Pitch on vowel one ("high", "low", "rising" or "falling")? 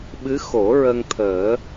rising